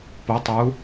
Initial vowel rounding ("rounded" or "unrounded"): rounded